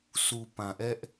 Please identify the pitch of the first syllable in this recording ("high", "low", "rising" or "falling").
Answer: low